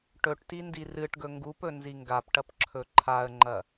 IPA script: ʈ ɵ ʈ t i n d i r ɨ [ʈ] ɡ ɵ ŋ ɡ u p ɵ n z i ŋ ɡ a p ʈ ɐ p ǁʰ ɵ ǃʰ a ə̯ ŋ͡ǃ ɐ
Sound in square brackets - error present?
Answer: no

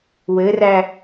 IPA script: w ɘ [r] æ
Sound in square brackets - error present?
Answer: no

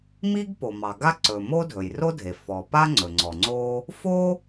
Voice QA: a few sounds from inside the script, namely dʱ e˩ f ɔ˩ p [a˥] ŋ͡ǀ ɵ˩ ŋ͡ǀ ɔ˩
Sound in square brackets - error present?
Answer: no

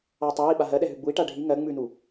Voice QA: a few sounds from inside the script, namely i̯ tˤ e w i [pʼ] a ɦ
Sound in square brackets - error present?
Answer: yes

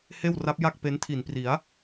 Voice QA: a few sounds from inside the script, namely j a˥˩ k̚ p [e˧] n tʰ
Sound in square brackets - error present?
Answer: yes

